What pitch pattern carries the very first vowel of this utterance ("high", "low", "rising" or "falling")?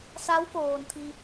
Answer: rising